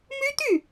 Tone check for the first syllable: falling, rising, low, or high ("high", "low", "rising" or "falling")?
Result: high